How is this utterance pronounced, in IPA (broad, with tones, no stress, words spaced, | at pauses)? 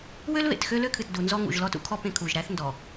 wø˦lβḛ˨t xø˦lø˦kʰɨ˨t du˨nzɔ˦ŋṵ˨ʒ lɔ˦tṵ˦kʰɔ˦ pẽ˦ kʰu˨ʒɾæ˦θ ndɔ˨